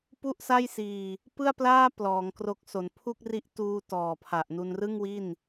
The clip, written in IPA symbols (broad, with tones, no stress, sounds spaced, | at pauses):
p u˥˩ ʔ s a˥˩ j s iː˧ | p ɯ˥˩ a̯ p l aː˥˩ p l ɔː˩˦ ŋ k r o˦˥ k̚ s o˩˦ n pʰ u˥˩ k̚ r i˦˥ ʔ t uː˧ t ɔː˨˩ pʰ a˨˩ ʔ n u˧ n r ɯ˥˩ ŋ w i˥˩ n